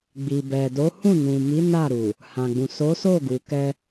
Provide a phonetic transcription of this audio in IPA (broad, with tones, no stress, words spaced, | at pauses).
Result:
ɡ͡bi˨bɛ˨do˨˦hũ˦˨ nũ˨mi˨˦ na˦˨ɾu˨ | hã˨ɡ͡bũ˨ so˨˦so˦˨ ɡu˨kɛ˧